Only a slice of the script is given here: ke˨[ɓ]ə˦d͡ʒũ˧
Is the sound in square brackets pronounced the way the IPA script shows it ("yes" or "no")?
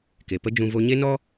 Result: no